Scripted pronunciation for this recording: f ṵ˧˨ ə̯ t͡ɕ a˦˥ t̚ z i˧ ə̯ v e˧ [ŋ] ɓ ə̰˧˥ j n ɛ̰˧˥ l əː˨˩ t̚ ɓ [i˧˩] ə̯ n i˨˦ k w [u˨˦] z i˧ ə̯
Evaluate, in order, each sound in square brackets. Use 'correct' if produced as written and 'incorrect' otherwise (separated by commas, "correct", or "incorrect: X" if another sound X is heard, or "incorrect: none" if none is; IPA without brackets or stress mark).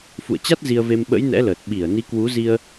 incorrect: m, correct, correct